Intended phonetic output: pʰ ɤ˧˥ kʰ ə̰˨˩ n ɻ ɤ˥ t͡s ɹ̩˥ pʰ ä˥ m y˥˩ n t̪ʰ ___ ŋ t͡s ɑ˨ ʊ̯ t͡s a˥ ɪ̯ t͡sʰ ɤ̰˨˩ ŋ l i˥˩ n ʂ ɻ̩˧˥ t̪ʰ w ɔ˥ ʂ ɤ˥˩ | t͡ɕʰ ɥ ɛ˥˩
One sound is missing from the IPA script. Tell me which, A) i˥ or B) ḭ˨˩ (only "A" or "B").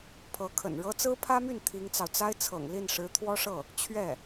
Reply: A